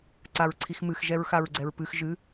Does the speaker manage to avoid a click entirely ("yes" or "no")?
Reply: no